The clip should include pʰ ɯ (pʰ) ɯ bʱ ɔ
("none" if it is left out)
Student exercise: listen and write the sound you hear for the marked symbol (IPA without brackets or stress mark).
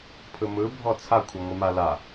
m